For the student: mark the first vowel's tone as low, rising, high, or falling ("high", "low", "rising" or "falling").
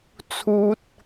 high